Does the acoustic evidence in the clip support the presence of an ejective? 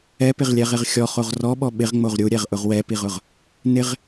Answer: no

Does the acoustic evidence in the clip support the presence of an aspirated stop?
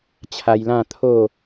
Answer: yes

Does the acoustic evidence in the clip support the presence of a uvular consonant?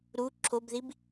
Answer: no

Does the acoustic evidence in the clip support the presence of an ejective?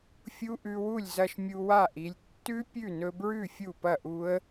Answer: no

